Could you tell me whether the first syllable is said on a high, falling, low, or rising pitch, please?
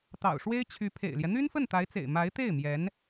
low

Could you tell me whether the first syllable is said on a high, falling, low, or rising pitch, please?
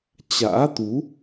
rising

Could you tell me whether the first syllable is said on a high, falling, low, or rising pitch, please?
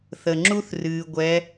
low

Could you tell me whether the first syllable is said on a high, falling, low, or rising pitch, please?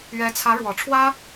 rising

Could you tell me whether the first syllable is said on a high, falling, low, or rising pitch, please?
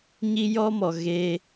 high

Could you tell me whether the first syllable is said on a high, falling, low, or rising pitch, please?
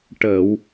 low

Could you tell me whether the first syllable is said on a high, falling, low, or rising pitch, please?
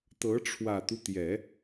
rising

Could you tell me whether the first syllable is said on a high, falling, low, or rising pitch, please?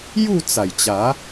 falling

